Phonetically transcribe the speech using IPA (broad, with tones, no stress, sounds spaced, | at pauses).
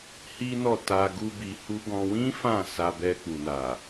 h i˦ n ɔ˦˨ t a˧ ɡ u˦ b i˧ h u˦ ɡ ɔ̃˧ w ĩ˦ f ã˦˨ s a˧ b ɛ˧ k͡p u˨ n a˨